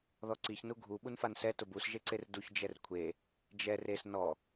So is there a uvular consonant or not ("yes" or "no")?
no